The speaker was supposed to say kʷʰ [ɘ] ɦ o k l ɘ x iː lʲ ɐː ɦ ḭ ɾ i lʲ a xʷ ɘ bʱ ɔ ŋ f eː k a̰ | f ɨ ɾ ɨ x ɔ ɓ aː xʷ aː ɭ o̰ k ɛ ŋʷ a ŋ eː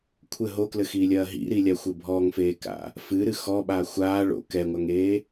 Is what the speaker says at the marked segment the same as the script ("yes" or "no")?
yes